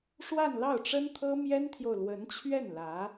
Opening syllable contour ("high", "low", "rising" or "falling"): falling